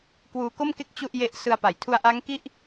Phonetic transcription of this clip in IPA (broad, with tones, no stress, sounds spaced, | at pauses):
k w uː˧ k o˥˩ m k e˥˩ k̚ t͡ɕ u˥˩ ʔ j e˦˥ ʔ s ɯ˧ a̯ p a˩˦ j tʰ u˦˥ a̯ ʔ a˦˥ ŋ k i˥˩ ʔ